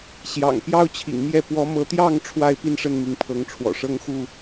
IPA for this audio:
ɕjɑ̰˨˩ŋpjɑ˦ʊ̯t͡ɕʰḭ˨˩ŋmjɛ˥˨ pwɔ˨˦mɤ˨˦t̪jɑ˥˨ŋ ʈ͡ʂʰwa˥˨ɪ̯ pi˦nʂə˥˨nmi˨˦ŋpʰɤ˨˦ŋ ʈ͡ʂʰwɔ̰˨˩ʂɤ˦ŋxu˥˨

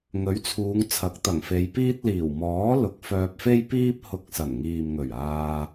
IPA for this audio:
ŋɵ˨˥ɥt͡sʰuː˨˧ŋ t͡sʰɐ˨˥k̚t̪ɐ˨˩ŋfe˨˧jpiː˥t̚ liː˨˩wmɔː˨˥ lʊ˨˥k̚fœː˧p̚fe˥jpiː˥p̚ hʊ˧k̚sɐ˨˩nŋiː˨mŋɵ˨˩ɥ aː˧

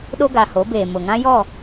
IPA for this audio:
ɗo˦ɡa˨ho˨˦beː˨ mʊ˨ ŋã˦jɔ˦˨

